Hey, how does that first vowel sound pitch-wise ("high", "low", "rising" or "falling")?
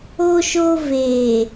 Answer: high